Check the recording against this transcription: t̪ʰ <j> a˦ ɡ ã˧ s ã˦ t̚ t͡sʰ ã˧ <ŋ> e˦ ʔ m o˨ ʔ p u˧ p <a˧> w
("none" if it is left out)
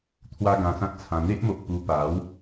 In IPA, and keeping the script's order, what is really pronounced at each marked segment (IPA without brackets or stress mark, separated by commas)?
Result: w, n̪, a˨˦